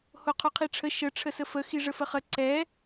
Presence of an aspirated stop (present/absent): present